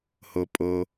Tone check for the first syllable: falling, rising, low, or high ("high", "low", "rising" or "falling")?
low